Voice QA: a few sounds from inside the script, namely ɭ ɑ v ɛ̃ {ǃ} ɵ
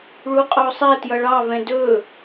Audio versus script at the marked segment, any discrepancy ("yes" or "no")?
yes